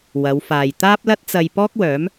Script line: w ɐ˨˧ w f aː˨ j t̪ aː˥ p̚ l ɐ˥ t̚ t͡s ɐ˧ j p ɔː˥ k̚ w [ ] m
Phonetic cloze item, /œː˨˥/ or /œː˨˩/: œː˨˥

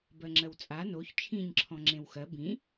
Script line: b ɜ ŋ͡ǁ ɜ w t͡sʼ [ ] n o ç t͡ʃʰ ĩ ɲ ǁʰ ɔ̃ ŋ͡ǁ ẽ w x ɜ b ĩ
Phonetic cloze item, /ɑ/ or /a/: a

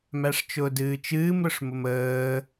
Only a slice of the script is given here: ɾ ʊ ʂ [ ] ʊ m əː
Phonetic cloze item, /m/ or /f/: m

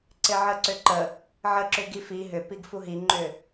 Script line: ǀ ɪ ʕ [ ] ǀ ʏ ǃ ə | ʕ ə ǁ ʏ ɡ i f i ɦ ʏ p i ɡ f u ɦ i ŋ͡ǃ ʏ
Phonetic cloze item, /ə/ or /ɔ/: ə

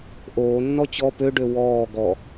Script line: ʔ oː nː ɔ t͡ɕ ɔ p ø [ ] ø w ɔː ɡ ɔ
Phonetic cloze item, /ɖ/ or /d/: ɖ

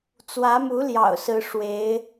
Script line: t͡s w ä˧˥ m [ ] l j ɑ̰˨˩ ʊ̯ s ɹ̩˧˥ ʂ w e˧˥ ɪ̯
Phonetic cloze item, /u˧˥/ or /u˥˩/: u˧˥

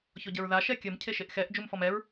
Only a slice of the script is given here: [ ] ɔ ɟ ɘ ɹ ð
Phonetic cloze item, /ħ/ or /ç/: ç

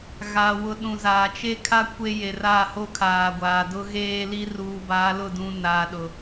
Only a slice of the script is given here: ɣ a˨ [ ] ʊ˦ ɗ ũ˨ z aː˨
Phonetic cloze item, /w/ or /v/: w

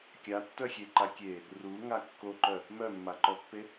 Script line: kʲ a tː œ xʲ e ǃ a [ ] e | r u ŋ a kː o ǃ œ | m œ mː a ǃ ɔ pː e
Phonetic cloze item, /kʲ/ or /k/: kʲ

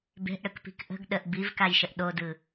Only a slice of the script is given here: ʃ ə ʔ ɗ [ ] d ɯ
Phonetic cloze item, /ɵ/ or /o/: o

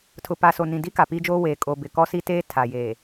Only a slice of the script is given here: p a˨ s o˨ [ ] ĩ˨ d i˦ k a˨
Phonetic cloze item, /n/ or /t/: n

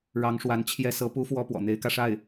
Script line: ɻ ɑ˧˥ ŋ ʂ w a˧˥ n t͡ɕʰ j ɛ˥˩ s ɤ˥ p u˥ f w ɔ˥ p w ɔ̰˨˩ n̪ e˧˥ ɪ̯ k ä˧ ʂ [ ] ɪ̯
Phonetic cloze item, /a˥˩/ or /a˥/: a˥˩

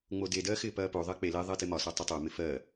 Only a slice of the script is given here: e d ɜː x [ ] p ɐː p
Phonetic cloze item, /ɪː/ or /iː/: ɪː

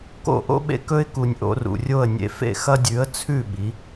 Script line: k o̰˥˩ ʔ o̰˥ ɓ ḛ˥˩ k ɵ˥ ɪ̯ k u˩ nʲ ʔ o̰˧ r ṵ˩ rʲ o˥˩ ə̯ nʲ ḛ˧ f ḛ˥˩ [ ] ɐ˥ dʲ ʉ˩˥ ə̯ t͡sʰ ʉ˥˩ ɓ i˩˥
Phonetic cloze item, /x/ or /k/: x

